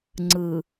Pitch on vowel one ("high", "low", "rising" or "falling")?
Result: low